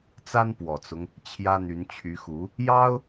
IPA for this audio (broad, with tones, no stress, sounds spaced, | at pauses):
t͡s a˥ n p w ɔ˨˩ t͡s ʊ˦ ŋ | t͡ɕʰ j ä˥ n̪ y˧˥ n t͡ɕʰ y˧˥ x u˧˥ | j ɑ˥ ʊ̯